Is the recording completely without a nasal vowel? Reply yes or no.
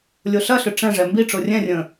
no